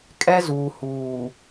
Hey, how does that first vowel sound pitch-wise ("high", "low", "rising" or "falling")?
high